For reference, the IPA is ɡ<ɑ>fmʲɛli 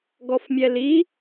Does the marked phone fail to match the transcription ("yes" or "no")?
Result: yes